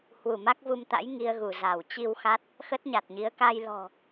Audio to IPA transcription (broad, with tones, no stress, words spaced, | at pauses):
hwu˧˩ma˦˥k̚vu˧mt̪a̰˧˥j ŋi˧ə̯ɣu˧˩ za˧˩w t͡ɕi˧wxa˦˥t̚ | xə˦˥t̚ɲa˨˩t̚ɲi˨˦ə̯ ka˧jlɔ̤˨˩